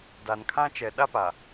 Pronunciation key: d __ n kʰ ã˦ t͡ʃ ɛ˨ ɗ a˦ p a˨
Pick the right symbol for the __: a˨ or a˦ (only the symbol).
a˨